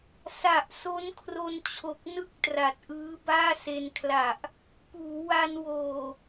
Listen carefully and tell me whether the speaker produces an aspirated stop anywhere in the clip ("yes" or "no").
yes